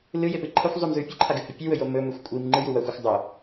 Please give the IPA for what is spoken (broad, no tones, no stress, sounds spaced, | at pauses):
l ɨ j e p ɨ ǃʰ ɐ xʷ zˤ ʉ m z ʉ pʲ ɨ ǃʰ a ɡ ɨ h ɵ pʲ ʉ w ɵ j o m ɵ m ɵ xʷ kʷʼ i m ŋ͡ǃ ɨ j u w ɐ xʷ i xʷ dˤ o